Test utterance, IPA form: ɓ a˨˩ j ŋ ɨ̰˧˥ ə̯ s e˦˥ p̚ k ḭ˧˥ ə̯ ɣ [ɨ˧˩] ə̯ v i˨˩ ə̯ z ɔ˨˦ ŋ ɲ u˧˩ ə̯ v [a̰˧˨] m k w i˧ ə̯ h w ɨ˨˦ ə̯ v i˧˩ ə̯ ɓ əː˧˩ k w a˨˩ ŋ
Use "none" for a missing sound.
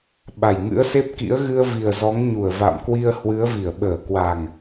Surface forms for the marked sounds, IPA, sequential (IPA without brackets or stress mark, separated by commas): ɨ˧, a̰˧˨